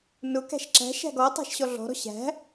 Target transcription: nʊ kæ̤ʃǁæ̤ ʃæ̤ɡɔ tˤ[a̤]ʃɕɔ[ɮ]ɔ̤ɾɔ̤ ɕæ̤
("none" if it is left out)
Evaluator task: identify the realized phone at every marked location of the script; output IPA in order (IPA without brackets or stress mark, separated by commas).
æ̤, ɮ